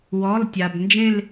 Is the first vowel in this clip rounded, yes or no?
yes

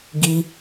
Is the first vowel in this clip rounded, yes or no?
no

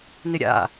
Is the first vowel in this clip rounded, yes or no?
no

